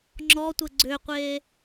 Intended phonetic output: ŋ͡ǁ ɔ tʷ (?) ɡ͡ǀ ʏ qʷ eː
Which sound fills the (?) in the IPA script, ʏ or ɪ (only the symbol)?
ɪ